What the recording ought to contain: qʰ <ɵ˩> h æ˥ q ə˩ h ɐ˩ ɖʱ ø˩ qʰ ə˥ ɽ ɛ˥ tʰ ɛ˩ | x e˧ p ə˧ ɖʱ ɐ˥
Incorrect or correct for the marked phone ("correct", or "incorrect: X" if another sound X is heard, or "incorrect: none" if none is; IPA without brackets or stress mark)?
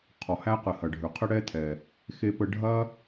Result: incorrect: ɔ˩